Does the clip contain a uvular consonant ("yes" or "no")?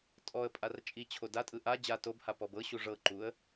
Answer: no